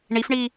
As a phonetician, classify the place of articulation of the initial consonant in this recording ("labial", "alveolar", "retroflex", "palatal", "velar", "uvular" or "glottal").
retroflex